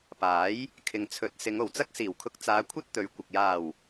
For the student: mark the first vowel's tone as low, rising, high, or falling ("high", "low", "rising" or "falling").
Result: rising